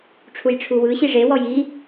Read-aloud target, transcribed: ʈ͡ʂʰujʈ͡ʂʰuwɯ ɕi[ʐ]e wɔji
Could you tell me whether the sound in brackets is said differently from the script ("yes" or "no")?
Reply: no